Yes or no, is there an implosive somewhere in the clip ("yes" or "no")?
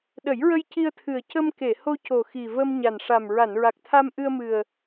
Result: yes